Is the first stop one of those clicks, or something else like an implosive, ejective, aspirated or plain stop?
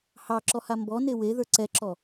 click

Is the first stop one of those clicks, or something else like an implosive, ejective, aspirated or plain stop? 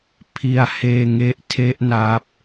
aspirated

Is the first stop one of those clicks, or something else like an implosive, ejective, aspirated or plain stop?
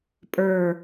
ejective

